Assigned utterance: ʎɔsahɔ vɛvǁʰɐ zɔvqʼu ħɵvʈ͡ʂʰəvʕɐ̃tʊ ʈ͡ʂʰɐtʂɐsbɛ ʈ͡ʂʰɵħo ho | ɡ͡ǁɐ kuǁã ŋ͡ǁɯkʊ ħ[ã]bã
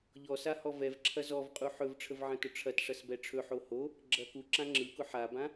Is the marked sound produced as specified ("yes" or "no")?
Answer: no